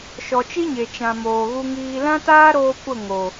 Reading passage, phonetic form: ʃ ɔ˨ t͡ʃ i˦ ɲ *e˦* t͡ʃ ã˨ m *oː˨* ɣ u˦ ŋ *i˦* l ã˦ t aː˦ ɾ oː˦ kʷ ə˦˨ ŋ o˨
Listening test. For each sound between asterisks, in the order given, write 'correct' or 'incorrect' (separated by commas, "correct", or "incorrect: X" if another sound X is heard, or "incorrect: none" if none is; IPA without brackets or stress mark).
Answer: incorrect: e˨, correct, incorrect: iː˦